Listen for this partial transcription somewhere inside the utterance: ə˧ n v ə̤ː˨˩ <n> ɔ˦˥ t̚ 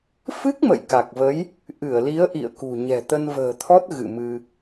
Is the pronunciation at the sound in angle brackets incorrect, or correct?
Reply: incorrect